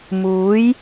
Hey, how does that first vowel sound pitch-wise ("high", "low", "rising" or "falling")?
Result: rising